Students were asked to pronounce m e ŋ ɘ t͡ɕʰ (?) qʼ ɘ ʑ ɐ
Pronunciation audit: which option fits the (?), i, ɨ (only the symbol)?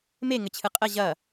ɨ